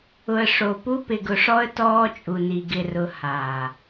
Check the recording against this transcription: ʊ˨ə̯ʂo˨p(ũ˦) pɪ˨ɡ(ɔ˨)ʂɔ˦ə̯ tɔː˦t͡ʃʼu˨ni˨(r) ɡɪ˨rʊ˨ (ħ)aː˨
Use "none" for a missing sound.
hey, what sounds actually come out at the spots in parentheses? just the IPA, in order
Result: u˦, ʊ˨, none, h

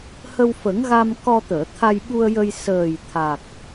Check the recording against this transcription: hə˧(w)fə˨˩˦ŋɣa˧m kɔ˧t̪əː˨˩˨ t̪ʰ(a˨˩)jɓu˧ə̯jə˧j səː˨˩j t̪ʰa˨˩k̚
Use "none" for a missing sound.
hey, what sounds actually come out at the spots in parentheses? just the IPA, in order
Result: w, a˧

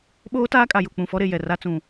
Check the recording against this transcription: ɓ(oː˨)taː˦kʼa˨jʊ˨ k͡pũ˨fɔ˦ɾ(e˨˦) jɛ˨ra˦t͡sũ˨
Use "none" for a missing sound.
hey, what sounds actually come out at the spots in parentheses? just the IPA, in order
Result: oː˦, e˨

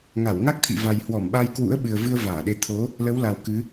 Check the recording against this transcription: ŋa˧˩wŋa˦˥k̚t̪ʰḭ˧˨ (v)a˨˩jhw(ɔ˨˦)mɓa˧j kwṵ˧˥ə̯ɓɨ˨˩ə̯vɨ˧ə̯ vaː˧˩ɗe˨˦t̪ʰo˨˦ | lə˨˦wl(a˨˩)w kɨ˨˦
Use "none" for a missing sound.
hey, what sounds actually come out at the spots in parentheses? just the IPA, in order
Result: v, ɔ˧˩, a˨˩

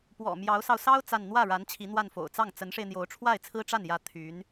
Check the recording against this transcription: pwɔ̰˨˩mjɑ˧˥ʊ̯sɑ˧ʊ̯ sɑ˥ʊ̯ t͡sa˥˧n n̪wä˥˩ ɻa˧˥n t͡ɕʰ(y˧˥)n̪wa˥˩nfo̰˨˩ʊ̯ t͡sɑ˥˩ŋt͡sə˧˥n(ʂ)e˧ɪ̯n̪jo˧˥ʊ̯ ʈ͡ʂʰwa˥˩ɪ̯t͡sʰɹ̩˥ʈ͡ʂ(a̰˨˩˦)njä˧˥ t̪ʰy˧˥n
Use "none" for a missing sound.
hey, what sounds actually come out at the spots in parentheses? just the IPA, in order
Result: i˧˥, ʂ, a˥˩

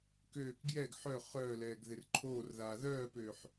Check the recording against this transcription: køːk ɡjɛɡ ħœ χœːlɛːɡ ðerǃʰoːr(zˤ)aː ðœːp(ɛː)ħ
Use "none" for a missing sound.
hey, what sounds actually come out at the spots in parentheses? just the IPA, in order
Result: ð, øː

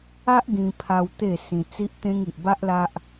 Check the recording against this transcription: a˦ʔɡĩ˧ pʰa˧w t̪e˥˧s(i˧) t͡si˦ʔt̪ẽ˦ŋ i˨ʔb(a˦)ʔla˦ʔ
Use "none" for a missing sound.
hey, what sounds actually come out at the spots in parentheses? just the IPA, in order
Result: ĩ˧, a˦

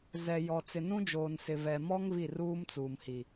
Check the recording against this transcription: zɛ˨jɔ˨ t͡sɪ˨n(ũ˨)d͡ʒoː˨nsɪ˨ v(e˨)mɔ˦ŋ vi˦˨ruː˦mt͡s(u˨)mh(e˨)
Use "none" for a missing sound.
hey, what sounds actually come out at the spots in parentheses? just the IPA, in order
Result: ũ˦, ɛ˨, uː˨, i˨

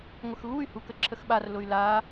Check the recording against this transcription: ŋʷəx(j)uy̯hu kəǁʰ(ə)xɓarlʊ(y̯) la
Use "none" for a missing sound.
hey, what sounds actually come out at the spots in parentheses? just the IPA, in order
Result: ɣ, ə, y̯

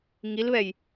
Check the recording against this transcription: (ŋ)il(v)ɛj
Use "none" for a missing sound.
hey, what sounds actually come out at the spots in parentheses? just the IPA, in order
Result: ŋ, β

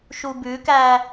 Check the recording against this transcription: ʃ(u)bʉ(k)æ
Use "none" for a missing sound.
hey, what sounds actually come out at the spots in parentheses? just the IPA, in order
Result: u, k

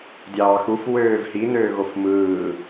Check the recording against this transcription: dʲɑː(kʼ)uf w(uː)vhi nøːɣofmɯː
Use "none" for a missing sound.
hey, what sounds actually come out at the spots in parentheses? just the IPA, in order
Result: x, øː

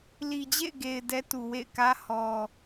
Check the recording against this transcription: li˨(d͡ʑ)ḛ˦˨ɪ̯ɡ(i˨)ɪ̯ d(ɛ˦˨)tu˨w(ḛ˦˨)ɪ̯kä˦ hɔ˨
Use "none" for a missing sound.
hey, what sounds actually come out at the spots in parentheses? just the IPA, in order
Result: d͡ʑ, e˨, ɛ˦, ḛ˦˨

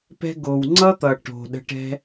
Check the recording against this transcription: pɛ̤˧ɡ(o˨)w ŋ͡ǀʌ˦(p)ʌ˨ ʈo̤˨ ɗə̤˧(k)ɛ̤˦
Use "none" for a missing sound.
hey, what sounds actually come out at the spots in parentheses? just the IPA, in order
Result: o˨, t̪, ʈ

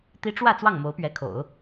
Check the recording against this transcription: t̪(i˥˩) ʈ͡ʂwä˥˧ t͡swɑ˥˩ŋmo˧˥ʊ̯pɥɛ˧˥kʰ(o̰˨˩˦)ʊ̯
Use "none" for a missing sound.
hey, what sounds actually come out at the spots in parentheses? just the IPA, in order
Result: i˥, o̰˨˩˦

